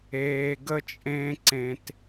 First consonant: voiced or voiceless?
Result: voiced